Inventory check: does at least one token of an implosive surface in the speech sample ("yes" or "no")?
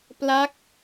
no